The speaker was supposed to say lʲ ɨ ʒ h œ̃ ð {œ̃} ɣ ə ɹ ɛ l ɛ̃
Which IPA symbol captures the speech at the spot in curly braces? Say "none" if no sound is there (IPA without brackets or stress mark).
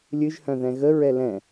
ɛ̃